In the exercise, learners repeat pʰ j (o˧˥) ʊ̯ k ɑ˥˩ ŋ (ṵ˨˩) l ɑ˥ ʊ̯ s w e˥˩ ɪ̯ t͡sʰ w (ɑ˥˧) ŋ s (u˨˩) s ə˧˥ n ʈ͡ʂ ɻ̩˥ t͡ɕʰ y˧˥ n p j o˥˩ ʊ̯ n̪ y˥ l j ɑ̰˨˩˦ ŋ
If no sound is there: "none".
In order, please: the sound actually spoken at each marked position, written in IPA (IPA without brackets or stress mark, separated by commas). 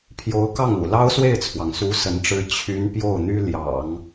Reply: o˧˥, ṵ˨˩, ɑ˩, u˧˥